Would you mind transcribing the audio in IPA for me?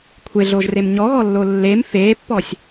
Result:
kʷʰeɮoʒrem ɲɔɣɔlːo lːem fepːɔsʲ

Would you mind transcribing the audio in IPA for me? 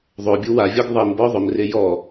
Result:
ðˤobʲu wavʲɔɡ ðˤimbɔ ðˤʊmre jɔ

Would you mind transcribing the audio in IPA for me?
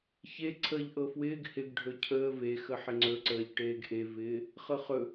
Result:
çe ǀʰəːʎʔɤfwɪːɡ hɪɡ ɖʱɵcʰəː ve xəħɪŋ͡ǀɵǀəːʎ ʈeːɡʔevɪː | χɤχɵ

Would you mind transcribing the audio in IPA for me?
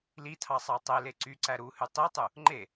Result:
litʰɑ sˤɑtˤele ǀyǀæ ɾuhy tˤitˤu | ŋ͡ǃe

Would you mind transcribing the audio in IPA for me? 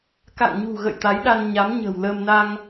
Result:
ka̰˧˨ŋɲṳ˨˩ɣə̰˧˨j t̪a˨˦j ɗa˧nɲa˨˦mɲə̤ː˨˩w ləː˧m na˧ŋ

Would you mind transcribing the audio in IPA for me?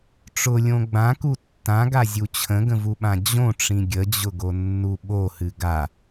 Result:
ʈ͡ʂʊlʲõ ɡ͡bãku tːãɡazʲu t͡ɕʰə̃ɡə̃vuɓã d͡ʑõʈ͡ʂĩ ɡʲəd͡ʑʊɡonːu ɓohɨ ɡa

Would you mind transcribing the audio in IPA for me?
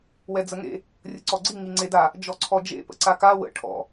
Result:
wɛd͡zəŋḛ | rʲəǀɔɡ͡ǀi ŋiŋ͡ǀeda | d͡ʒɔǀʰɔd͡ʒḛ pə̰ǀaka wə̰ ʈʰɔ̰

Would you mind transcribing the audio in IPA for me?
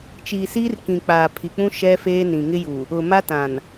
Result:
t͡ʃiː˨siː˦rkĩ˨ k͡paː˨pʰi˨k͡pũ˦ ʃɛ˦feː˦ nĩ˨ŋɪ˦ju˨ | ʊ˨ ma˦ tã˨n

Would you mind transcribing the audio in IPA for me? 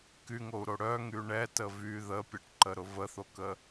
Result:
kyŋou̯ɾo ɽœŋy ɳɛtə vy ðəpʲɛʈǃəɾʊ vəθokə

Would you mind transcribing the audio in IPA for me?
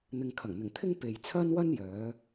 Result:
n̪ɪ˨ŋkʰɐ˨˩ŋn̪ɪ˨˩ŋt̪ʰɪ˥ŋ pe˨j t͡sʰɐ˥nwɐ˥n jœː˨˥

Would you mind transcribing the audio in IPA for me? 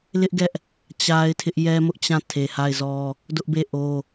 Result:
lɪ˦ʔɡɛ˦ʔ | t͡ɕa˦ɪ̯tʰɪ˦ʔ jɛ˦mʊ˦ʔt͡ɕã˦˨ tʰe˨ha˦˨ɪ̯ zɔ˦ | dʊ˦ʔbe˦˨ ʔo˦

